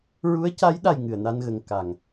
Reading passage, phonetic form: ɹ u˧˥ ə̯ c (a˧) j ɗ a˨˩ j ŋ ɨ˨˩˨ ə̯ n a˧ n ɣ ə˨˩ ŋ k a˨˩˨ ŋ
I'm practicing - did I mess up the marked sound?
yes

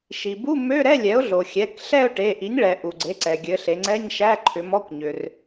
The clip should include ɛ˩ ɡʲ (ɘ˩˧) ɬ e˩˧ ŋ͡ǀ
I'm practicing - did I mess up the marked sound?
no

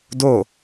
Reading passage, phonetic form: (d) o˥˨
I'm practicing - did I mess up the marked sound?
no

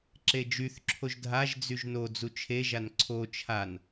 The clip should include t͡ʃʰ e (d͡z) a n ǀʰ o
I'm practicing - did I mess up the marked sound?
yes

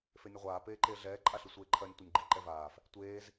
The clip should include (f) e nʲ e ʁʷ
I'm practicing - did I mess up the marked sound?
no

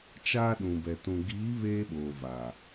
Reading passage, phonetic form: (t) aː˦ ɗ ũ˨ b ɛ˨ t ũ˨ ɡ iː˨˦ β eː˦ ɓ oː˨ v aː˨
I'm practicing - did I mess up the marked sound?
yes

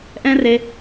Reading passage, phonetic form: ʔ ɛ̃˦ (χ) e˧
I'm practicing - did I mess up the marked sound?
yes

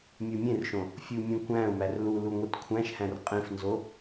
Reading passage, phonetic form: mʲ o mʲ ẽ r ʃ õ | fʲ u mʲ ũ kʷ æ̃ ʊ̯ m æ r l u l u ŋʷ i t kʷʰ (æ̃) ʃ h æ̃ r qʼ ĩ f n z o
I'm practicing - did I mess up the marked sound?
no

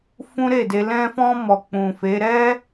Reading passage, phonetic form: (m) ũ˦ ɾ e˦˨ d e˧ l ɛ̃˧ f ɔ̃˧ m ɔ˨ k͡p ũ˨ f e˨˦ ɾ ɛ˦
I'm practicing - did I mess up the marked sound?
yes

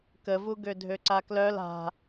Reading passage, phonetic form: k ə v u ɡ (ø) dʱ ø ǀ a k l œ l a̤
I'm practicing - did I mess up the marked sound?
no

